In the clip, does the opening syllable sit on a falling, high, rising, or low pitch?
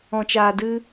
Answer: low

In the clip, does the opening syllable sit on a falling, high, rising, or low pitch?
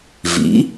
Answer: rising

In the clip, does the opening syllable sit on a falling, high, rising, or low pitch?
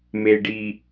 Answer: low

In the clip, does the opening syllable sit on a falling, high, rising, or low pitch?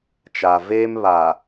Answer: low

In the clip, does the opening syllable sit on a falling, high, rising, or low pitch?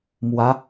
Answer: rising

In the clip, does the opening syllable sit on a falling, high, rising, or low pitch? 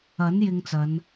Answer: rising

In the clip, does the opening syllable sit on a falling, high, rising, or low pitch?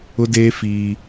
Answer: high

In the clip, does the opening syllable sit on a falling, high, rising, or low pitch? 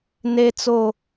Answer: high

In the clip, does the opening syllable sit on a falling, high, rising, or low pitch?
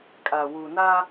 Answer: low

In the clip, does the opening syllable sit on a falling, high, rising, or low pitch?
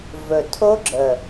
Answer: low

